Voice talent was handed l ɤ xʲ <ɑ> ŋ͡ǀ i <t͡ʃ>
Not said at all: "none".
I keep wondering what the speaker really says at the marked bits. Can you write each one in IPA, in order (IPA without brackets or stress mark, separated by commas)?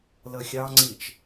ɑ, t͡ʃ